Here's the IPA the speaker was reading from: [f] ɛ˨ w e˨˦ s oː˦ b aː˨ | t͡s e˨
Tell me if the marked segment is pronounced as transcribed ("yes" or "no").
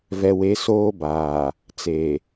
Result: no